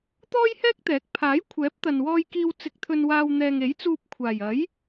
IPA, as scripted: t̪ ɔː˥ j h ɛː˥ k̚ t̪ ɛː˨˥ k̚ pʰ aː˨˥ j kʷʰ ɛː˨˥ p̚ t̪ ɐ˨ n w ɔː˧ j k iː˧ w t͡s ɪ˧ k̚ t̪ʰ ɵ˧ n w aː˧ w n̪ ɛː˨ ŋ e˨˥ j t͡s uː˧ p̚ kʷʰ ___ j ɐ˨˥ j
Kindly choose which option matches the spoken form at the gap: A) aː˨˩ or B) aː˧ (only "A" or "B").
A